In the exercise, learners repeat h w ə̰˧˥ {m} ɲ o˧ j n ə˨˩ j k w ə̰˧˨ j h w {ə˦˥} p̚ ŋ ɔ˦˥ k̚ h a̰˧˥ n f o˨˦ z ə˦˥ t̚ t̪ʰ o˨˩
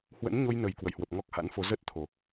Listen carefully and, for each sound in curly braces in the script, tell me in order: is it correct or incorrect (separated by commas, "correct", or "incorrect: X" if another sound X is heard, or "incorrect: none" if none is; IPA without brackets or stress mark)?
incorrect: n, incorrect: ə˨˩